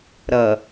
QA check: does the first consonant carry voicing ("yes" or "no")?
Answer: yes